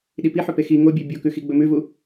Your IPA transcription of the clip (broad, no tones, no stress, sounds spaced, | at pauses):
ɗ i p i ħ ɵ p e x i ŋ o bʲ e bʲ o k ʉ x i ɡ͡b ɵ m ʉ v u